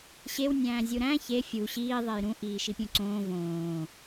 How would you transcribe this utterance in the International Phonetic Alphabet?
ɕew nʲæ̃ːzʲuɾæ̃ çe fʲu ɕiː ðˤejɾũ ʔiːʃipʲũǀõː võː

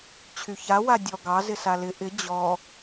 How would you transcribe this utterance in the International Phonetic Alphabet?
t͡ɕʰyça wadʲɔ ɡɑ zɪsalɪ ʔɪ d͡ʑɔ

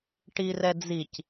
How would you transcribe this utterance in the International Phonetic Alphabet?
ʈirɛd͡zic

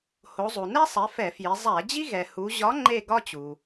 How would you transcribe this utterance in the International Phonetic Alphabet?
ho˩˧zˤu˩nɛ˦sˤɛ˩˧ fɛ˧˩˧fji˩˧ zˤæ˧˩˧d͡ʑi˦ ɣɛ˩hu˩˧ʑɒ˨˥ ŋ͡ǃe˦˨ ɡɒ˦t͡ɕu˩

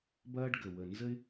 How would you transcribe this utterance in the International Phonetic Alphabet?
bɐː˥ɖɡə˨˩ wə˨˩nzə˥ɪ̯

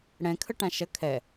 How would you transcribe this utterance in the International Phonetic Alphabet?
ɽɛ̃kʰəʈã ʃɐ kʰɛ

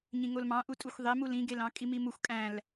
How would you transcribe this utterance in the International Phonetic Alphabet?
ɲĩŋolmɑ̃ʔu tʼuxʷðˤemul ĩɡelɑ̃ kʼimimuxʷ kʼæ̃l

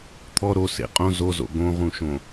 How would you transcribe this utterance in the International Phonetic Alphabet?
t̪ʰɔ ɾo sḛqʼõ zozo̰ ɡõʁũʃõ

